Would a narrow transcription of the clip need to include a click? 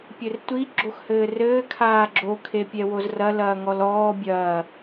yes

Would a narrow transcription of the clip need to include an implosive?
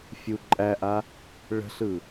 no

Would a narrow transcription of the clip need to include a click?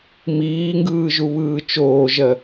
no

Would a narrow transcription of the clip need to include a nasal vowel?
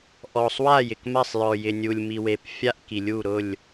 no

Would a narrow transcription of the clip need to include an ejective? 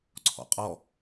yes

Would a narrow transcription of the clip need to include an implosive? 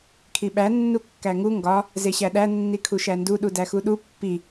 yes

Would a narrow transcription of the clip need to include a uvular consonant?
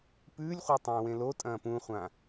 yes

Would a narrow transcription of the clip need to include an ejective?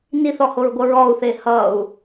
no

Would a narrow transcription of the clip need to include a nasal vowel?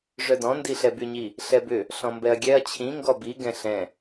yes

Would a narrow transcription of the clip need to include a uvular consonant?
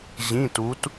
no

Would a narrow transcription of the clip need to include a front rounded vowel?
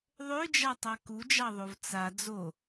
yes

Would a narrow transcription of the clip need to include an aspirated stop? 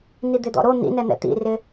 no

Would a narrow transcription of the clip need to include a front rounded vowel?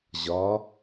no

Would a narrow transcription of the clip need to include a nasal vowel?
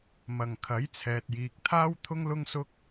no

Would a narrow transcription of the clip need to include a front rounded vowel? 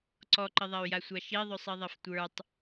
yes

